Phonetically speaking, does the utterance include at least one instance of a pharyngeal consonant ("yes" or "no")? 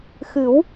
no